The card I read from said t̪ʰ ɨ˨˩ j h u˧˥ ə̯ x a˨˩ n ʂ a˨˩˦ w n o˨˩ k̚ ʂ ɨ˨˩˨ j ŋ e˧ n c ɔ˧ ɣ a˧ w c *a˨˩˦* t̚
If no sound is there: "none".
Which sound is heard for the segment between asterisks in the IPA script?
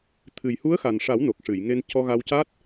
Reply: a˦˥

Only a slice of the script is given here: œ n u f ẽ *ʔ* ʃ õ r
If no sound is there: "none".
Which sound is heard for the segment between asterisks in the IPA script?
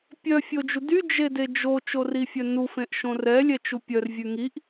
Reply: ʔ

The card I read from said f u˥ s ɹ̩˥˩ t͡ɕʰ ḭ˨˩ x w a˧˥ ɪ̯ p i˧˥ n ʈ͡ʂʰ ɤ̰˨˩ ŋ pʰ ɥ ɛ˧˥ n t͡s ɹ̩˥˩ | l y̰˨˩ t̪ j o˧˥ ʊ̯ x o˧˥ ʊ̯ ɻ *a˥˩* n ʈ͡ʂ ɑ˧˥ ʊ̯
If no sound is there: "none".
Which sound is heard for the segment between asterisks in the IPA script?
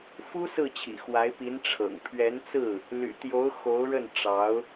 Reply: ə˥˩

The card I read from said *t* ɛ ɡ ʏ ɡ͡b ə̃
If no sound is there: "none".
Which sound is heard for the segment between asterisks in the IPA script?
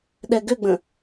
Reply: ɗ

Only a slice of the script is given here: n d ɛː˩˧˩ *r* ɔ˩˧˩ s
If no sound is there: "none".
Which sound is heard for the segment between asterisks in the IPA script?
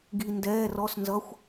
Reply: r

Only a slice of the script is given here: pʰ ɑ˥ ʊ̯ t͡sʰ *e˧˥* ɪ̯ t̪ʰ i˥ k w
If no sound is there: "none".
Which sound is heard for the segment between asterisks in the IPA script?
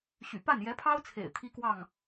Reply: ḛ˨˩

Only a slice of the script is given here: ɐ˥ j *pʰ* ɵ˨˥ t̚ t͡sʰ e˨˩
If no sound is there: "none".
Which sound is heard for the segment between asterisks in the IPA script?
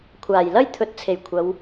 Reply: t̪ʰ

